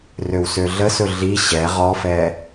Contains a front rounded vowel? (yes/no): yes